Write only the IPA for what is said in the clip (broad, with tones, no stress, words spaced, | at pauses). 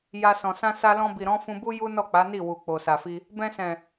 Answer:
ja˧sɔ̃˨ sã˧sa˧lɔ̃˧bi˨ ɾɔ̃˨˦fũ˧bu˦ ju˦nɔ˦˨k͡pa˨˦ni˦˨ wu˨ k͡po˨sa˨fi˧ | bɛ̃˧sɛ̃˨